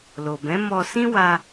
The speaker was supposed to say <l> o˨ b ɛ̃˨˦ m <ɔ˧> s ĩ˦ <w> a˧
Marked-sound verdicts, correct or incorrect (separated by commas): correct, correct, correct